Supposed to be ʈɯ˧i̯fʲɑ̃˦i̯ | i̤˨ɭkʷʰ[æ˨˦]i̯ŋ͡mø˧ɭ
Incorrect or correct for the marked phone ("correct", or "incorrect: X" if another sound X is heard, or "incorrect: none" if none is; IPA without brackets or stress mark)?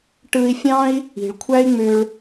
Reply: incorrect: æ˦